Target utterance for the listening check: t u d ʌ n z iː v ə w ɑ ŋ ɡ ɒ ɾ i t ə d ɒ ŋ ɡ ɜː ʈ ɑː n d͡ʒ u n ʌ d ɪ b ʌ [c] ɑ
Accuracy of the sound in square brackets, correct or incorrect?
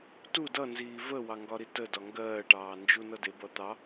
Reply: incorrect